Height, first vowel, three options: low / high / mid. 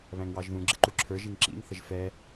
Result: low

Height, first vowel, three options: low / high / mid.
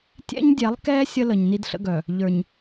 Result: mid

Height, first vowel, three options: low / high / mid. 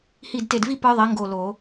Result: high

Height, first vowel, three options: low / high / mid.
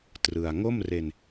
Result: high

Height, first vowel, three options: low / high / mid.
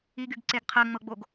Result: high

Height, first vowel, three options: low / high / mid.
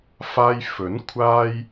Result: low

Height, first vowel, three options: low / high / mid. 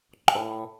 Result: mid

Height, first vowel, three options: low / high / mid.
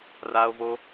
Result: low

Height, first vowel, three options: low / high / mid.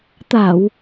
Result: low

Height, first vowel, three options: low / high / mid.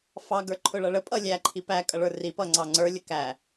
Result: low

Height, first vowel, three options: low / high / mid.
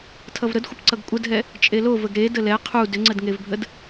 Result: mid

